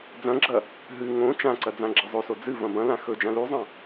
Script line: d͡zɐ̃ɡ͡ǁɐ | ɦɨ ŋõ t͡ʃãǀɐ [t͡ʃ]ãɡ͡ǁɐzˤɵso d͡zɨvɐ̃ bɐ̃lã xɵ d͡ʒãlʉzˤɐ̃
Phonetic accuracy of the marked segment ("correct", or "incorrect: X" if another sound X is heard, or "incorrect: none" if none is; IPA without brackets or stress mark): incorrect: d͡z